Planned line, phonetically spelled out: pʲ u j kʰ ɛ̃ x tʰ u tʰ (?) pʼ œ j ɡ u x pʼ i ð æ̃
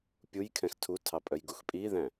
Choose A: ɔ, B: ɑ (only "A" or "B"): B